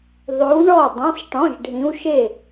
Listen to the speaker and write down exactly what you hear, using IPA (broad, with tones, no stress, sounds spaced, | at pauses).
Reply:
ðˤ ʉ˧˥ w ɳ ɔ˥˨ dˤ ĩ˧˥˧ sˤ ʈ ɔ̃˧˥˧ ʒ ɖʱ ĩ˧˥ w ʃ e˥˨